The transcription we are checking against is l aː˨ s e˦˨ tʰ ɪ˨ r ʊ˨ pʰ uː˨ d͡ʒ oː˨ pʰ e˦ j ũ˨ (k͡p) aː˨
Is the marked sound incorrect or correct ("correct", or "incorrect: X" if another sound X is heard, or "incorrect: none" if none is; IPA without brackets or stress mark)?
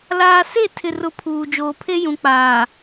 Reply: correct